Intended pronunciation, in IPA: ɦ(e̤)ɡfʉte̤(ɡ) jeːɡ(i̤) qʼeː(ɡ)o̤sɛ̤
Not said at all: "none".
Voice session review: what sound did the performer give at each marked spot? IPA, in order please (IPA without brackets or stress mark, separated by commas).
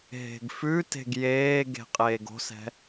e̤, ɡ, e̤, ɡ